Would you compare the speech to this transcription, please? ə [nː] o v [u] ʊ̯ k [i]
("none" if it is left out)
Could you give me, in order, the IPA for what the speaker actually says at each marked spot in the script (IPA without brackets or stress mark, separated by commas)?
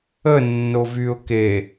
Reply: nː, y, e